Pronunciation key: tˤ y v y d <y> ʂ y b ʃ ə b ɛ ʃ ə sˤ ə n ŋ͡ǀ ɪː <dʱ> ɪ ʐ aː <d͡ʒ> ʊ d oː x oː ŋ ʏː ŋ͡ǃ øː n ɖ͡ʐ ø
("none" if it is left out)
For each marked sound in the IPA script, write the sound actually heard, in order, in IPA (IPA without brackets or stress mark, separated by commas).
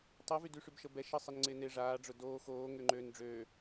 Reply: y, n, ɖ͡ʐ